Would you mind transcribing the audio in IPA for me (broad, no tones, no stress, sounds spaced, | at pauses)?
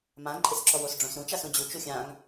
m ã ǃʼ ɪ s ǁ ɔ w o s ɖ͡ʐ õ s ɾ ũ t͡ʃ a s ũ d͡ʑ u t͡ʃ u xʲ ã ŋ